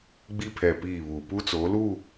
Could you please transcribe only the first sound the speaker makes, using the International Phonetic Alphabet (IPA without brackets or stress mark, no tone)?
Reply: ɡ͡b